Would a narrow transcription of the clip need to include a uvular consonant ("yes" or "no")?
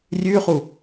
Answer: yes